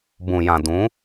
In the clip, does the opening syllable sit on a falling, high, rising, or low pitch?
low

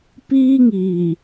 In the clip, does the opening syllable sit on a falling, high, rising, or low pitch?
high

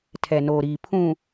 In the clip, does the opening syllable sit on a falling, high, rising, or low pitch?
low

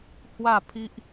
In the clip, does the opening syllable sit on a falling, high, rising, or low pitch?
falling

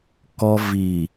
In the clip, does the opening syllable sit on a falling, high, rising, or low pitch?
high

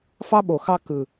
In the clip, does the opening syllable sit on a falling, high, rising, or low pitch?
high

